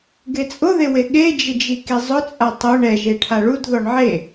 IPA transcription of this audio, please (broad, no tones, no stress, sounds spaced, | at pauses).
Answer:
ɡ e t͡sʼ ʊ ð e w e ɠ e d͡ʒ ɪ d͡ʒ i k i zˤ ʊ t͡sʼ a tˤ ʊ ɳ ɛ ʒ e ʈʰ a ɭ u d ð ɔ ɳ ʕ e